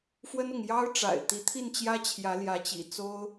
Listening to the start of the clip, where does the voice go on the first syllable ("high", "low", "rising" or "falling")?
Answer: high